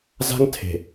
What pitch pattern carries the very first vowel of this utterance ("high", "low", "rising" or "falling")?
high